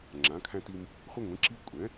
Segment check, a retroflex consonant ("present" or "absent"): absent